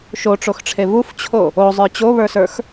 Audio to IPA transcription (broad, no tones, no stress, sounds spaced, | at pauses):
ʃ o ʈ͡ʂ o x ʈ͡ʂʰ e v u f t͡ɕʰ o | o zˤ ə˞ t͡ɕ o β ə˞ s ə˞ x